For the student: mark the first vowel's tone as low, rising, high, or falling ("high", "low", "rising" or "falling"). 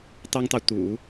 high